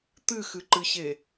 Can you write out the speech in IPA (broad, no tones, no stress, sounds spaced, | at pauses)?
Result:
t̪ ɨ x ɨ ǃ ɨ ɕ e